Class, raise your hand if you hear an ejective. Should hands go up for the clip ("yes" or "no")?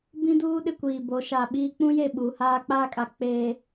yes